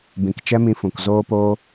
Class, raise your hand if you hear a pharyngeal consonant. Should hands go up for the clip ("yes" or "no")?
no